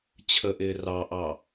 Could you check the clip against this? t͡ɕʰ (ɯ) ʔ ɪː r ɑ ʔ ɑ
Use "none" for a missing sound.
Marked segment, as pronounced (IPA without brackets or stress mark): ə